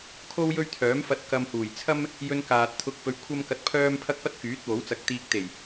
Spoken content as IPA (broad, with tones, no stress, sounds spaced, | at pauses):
kʰ o˥ w j ɵ˥ ɥ t̪ʰ œː˨˥ m f ɐ˧ t̚ k ɐ˧ m h uː˨˩ j t͡sʰ ɐ˥ m | j ɵ˧ n k aː˨ t̚ t̪ʰ ʊ˧ k̚ p ɵ˧ ɥ kʷʰ ɐ˥ m k ɐ˧ t̚ pʰ œː˥ m pʰ ɐ˥ k̚ p ɐ˥ t̚ k yː˨˥ t̚ w o˨˥ w t͡s ɐ˧ k̚ t̪ iː˧ k̚ t̪ e˨˩ j